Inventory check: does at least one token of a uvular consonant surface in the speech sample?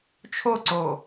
no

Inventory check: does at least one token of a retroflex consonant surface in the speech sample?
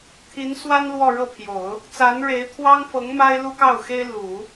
yes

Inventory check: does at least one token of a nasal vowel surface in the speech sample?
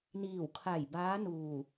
no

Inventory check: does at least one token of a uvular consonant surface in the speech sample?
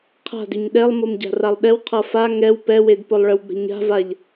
yes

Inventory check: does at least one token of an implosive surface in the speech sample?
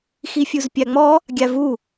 no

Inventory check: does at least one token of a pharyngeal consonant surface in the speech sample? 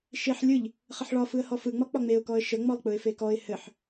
yes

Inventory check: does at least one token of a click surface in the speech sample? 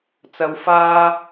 no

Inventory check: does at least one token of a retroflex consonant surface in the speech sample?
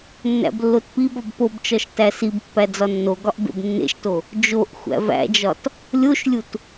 no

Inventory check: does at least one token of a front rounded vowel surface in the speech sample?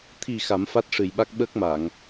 no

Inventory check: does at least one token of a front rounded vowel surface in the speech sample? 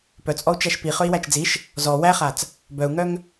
yes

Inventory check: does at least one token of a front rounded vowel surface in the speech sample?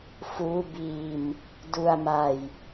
no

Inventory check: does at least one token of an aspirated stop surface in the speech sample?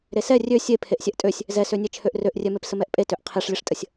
yes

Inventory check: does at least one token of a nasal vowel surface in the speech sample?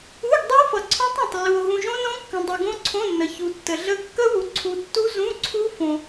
yes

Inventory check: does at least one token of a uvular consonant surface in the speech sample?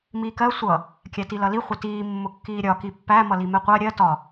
yes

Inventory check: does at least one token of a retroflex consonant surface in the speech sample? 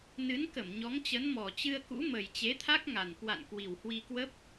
no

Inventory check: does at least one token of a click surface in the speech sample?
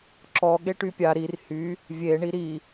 yes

